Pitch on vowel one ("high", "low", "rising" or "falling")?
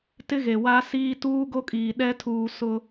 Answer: high